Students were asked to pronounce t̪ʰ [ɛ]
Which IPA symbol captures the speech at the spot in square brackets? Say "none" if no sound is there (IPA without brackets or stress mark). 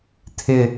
ɪ